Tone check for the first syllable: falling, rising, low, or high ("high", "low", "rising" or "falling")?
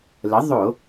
rising